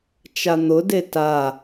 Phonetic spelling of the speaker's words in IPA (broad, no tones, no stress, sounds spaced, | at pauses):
t͡ʃ a n̪ ʊ d e t a